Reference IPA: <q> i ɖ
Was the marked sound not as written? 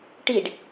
yes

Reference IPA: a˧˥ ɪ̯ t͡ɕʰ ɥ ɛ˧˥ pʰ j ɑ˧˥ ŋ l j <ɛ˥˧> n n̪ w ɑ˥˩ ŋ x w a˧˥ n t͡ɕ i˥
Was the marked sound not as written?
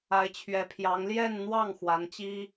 no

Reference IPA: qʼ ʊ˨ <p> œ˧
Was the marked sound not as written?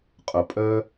yes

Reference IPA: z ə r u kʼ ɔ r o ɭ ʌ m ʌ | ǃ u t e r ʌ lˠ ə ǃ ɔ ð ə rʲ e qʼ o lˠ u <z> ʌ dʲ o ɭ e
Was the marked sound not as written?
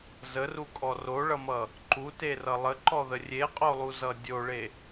no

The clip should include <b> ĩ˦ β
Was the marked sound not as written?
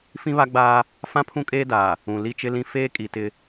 yes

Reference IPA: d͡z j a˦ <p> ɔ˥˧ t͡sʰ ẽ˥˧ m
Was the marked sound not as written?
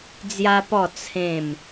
no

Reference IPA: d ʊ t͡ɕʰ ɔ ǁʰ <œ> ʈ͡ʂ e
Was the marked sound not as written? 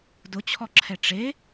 yes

